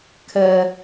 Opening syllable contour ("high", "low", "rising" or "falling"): high